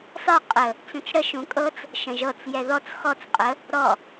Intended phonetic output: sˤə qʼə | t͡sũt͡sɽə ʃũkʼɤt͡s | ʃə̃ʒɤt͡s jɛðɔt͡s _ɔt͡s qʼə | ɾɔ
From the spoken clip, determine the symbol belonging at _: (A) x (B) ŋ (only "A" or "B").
A